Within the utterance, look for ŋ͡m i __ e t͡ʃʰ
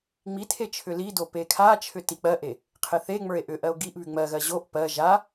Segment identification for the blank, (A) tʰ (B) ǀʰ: A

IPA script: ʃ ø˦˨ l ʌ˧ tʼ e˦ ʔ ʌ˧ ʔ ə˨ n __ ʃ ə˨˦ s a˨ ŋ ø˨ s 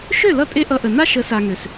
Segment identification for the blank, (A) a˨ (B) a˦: B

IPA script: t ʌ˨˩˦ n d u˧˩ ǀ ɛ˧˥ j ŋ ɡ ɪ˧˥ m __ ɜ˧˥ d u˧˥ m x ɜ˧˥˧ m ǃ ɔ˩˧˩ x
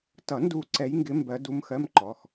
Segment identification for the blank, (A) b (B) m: A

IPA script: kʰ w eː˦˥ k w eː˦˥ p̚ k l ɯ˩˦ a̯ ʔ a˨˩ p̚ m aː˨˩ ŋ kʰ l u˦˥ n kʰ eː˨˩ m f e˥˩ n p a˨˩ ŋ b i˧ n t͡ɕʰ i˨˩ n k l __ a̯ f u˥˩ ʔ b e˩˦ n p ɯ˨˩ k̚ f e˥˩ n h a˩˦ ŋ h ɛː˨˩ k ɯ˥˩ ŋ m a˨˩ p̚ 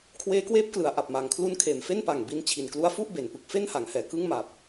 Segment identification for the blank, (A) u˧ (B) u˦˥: B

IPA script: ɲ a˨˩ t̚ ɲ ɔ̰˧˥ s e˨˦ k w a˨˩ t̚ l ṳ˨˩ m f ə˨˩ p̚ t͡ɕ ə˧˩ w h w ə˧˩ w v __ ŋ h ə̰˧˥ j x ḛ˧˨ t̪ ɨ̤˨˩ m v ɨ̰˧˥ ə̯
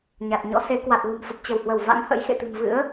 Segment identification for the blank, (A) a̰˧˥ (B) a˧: A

